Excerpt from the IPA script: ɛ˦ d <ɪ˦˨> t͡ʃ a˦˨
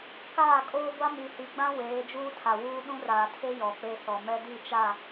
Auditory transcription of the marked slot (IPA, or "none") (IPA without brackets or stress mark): i˦˨